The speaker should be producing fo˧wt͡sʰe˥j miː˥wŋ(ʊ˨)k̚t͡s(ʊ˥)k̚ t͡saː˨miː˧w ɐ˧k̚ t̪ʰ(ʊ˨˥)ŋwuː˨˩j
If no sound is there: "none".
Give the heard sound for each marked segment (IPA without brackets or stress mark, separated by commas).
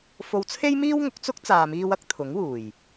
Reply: ʊ˨˥, ʊ˥, ʊ˨˥